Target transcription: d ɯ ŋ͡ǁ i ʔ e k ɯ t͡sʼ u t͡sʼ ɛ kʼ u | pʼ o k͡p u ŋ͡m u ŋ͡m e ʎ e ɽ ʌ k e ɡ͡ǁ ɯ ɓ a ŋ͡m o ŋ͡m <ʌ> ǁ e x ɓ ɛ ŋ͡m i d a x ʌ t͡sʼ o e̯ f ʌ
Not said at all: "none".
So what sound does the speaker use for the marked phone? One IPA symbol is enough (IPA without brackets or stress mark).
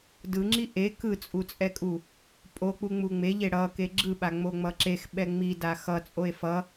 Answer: ʌ